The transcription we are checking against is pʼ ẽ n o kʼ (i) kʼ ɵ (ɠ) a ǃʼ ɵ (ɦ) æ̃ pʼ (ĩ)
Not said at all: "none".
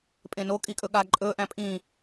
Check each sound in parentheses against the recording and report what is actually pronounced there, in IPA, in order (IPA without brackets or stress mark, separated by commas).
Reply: i, ɠ, ʔ, ĩ